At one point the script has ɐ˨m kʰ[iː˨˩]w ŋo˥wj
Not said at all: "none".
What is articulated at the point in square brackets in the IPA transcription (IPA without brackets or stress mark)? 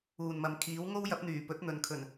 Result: iː˨˥